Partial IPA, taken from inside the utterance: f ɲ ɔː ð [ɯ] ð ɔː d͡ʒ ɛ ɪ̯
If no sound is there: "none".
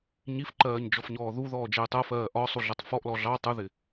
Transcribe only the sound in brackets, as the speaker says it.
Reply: u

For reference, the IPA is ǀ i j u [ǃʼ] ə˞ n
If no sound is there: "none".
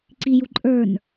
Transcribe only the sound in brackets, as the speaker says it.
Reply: ǃʼ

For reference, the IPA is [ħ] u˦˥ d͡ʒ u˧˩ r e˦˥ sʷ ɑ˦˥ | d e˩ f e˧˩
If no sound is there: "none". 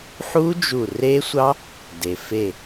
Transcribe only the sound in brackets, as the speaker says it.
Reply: ħ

